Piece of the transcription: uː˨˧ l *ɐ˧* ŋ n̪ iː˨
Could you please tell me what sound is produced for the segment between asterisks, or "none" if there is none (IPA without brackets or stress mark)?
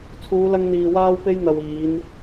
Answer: ɐ˧